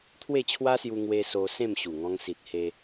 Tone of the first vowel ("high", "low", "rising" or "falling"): falling